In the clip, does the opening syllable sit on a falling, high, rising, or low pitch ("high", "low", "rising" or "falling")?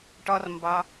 high